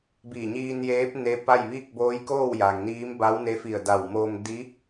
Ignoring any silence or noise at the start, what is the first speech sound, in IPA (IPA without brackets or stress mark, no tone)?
b